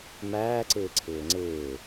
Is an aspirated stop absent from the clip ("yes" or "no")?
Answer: no